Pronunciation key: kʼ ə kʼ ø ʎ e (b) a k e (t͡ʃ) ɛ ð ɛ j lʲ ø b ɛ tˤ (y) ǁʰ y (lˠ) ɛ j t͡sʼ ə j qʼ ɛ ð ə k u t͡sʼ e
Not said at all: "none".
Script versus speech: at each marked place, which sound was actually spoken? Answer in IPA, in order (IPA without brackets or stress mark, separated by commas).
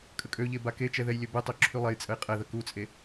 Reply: b, t͡ʃ, ø, lˠ